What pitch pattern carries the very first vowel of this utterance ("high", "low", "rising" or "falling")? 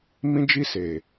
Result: high